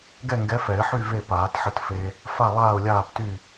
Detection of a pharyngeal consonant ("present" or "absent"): present